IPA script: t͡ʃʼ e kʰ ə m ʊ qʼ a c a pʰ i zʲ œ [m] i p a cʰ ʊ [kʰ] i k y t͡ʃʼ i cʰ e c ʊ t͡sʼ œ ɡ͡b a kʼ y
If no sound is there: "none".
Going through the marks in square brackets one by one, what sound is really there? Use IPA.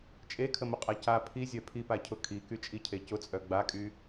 pʰ, kʰ

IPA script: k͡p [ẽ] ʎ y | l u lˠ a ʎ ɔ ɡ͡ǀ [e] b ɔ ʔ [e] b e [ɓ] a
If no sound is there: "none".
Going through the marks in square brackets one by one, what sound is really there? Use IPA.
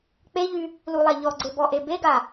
e, e, e, ɡ

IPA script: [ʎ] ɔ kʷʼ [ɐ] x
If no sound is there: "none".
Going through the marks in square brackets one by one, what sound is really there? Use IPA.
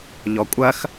ʎ, ɐ

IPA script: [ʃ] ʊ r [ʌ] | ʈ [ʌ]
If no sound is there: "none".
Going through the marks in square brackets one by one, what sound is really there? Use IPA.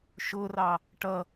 ʃ, ɑ, ʌ

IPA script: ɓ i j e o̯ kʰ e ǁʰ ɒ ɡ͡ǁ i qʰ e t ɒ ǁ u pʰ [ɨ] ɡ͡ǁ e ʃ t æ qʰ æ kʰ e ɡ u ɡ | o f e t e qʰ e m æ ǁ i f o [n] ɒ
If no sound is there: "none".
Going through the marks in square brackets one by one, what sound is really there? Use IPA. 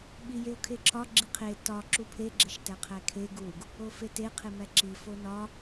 e, n

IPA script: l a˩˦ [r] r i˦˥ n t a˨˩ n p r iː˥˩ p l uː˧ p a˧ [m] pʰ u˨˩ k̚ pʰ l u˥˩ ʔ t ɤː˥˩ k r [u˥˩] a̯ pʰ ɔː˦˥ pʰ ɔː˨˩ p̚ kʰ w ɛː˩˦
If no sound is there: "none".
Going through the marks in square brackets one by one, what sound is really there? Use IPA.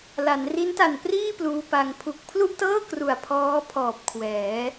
n, ŋ, u˨˩

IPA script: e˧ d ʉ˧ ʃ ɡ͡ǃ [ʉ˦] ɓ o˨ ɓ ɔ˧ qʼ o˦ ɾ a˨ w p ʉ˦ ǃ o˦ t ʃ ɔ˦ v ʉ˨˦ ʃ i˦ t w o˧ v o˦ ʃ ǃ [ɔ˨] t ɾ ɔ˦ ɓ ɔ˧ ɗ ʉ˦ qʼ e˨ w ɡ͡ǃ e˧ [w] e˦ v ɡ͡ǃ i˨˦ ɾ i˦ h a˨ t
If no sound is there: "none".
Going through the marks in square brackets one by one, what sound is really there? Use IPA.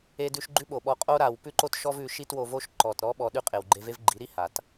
ʉ˦, ɔ˨, v

